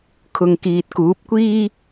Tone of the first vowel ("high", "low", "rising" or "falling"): low